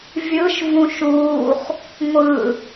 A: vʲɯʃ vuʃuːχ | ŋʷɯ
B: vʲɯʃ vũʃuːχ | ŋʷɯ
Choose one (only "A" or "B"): B